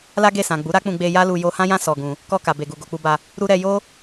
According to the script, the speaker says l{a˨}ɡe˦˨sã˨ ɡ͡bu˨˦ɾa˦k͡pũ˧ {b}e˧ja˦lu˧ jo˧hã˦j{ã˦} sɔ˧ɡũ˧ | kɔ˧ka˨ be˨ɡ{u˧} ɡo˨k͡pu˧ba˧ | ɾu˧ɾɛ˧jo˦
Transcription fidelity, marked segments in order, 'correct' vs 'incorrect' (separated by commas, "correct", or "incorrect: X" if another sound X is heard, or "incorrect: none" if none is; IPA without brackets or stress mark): incorrect: a˦, incorrect: ɡ͡b, correct, incorrect: u˨